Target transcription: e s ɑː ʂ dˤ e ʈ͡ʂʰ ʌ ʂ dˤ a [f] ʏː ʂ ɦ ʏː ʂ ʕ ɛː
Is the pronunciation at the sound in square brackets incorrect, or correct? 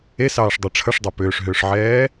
incorrect